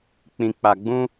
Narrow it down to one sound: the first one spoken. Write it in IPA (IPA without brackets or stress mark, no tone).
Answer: k͡p